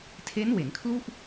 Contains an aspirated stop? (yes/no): yes